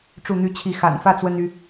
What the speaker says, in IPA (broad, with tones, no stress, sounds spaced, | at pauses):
ʈ͡ʂ u˥˨ n̪ y˥˨ t͡ɕʰ i˥˨ x a̰˨˩ n f ä˥˨ t͡s w ə˦ n y˨˦